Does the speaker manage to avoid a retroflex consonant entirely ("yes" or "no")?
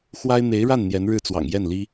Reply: no